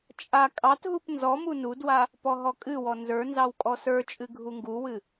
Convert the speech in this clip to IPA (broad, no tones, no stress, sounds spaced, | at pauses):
t͡ʃʼ a kʼ ɑ t ɦ u p n z ɔ m u n u d w a | p ɔ ɦ ɔ kʼ ɨ w ɔ n z ə˞ n z ɑ w kʼ ɔ s ə˞ t͡ʃʼ ɨ ɡʱ u ŋ ɡ u w ɨ